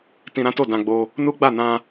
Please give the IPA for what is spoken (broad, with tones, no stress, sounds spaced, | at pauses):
t ĩ˧ ɾ ã˦ t o˦˨ d ã˧ ɡ͡b o˧ | n u˦ ɡ͡b a˦˨ n ã˧